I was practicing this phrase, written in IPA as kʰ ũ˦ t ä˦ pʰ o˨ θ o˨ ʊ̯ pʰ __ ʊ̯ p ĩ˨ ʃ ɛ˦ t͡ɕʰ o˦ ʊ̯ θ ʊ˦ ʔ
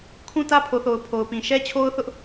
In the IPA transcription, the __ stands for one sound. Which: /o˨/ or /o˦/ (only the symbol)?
o˨